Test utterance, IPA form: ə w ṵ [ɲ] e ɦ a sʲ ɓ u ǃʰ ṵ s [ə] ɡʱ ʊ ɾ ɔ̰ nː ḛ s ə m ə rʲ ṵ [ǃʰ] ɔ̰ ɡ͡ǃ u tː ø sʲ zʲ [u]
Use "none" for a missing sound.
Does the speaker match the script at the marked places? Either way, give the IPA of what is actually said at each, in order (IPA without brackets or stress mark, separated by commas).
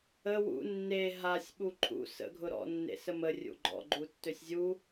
nː, ə̰, ɡ͡ǃ, u